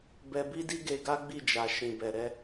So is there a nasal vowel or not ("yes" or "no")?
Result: yes